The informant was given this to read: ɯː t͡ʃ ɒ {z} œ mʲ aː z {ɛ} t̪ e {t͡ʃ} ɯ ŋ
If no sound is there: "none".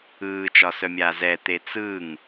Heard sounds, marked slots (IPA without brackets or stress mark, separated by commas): s, ɛ, t͡s